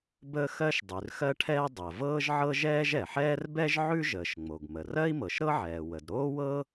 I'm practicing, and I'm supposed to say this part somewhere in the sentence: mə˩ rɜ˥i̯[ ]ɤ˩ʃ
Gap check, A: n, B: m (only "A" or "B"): B